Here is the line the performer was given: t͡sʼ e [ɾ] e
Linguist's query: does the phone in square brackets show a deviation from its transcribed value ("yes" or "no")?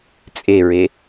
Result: yes